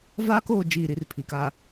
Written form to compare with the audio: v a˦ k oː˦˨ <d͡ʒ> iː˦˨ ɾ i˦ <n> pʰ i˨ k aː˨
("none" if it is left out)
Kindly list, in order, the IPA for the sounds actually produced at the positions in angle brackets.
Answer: d͡ʒ, r

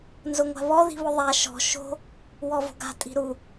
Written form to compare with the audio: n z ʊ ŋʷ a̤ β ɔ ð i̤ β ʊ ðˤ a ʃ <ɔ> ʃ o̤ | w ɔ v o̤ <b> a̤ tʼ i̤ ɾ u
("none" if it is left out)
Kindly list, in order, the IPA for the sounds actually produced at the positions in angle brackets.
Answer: ɔ̤, ɡ

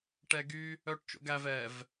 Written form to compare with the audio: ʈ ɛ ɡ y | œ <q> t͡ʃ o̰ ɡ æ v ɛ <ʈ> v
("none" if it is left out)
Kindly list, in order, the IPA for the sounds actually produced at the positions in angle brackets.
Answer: ʈ, none

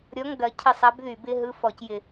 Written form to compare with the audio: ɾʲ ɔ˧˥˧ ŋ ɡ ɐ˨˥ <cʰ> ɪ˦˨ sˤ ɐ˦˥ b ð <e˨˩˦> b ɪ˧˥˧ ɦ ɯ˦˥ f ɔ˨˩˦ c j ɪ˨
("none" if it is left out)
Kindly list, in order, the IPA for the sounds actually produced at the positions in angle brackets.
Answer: cʰ, y˨˩˦

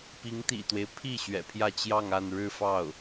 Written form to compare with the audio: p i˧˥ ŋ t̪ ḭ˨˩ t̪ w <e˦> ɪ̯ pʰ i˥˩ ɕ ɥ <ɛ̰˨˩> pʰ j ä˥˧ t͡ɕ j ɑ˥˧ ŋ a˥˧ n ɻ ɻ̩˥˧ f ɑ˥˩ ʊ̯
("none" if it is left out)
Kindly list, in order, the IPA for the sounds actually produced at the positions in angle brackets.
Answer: e˦, ɛ̰˨˩

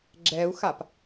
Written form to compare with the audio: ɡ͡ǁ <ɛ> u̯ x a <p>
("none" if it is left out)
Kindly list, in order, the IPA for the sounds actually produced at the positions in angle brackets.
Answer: ɛ, p

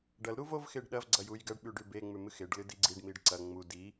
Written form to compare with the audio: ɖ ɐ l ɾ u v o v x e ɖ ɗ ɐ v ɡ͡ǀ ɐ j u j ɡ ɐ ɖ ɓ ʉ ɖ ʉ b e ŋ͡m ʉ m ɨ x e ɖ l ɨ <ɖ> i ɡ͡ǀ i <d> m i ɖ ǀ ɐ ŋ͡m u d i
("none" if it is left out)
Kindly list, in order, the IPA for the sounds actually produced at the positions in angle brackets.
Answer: d, ɖ

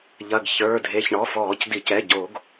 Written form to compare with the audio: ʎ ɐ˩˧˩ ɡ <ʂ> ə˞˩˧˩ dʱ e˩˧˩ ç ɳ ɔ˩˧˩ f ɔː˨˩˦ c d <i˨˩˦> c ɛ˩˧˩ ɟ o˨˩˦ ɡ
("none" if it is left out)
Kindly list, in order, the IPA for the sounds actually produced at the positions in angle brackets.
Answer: ç, i˨˩˦

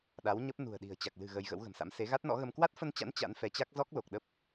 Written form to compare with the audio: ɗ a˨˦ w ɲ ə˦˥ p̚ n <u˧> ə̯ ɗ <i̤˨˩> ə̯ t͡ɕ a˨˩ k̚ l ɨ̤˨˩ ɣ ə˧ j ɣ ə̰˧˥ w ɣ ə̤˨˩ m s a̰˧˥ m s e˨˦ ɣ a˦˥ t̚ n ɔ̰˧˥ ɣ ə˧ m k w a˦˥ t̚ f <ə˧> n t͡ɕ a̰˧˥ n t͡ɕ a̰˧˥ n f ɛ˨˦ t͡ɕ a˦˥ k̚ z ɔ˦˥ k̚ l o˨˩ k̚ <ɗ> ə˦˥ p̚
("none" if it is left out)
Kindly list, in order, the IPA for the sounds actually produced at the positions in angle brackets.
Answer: ṳ˨˩, i̤˨˩, ə˧, ɗ

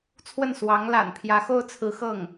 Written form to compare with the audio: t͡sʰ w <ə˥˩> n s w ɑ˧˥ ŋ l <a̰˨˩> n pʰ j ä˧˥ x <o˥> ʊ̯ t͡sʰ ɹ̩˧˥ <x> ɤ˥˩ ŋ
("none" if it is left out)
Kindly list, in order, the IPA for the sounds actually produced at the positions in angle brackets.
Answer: ə˥˩, a̰˨˩, o˥, x

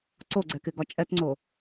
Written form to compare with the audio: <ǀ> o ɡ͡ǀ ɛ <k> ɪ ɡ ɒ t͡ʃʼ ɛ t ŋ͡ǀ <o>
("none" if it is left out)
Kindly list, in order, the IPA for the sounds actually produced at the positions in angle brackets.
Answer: ǀ, k, o

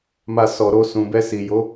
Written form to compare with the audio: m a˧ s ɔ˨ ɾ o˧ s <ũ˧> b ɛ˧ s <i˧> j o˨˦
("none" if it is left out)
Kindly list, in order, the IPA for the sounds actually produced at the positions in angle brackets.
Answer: ũ˨, i˨

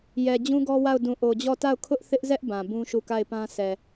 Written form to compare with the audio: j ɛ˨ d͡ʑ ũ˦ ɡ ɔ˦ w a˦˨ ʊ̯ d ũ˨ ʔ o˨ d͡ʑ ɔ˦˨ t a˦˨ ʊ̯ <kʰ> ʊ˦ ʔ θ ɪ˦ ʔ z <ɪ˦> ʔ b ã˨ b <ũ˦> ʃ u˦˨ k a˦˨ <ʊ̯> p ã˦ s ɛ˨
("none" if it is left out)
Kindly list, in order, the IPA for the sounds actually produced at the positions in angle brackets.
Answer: kʰ, ɛ˦, ũ˦, ɪ̯

